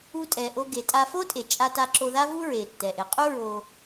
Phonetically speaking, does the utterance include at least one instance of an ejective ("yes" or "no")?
yes